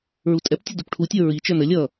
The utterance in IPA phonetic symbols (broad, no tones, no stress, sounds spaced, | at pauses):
ɹ u tʼ ɛ p tʲ ə d u p ʈʰ u tʲ ə˞ ɹ i t͡ʃ ə˞ n ə lʲ ʌ